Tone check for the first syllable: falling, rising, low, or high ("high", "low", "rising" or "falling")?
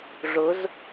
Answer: rising